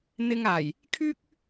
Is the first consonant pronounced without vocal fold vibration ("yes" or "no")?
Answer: no